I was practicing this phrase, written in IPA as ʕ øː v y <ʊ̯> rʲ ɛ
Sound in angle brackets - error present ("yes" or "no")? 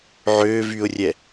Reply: no